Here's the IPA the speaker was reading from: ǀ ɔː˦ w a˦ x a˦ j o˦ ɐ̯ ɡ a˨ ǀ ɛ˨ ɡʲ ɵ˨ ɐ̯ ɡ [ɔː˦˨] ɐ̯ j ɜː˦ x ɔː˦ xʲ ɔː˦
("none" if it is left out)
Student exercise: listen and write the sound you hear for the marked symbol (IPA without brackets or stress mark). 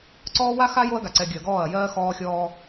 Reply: ɔː˦˨